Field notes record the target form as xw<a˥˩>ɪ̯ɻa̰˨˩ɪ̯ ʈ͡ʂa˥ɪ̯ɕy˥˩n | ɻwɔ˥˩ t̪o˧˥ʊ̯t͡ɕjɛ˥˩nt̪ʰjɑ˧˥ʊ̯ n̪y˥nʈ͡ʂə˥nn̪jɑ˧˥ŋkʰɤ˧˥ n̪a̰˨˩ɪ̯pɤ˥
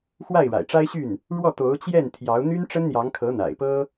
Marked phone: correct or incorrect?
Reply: correct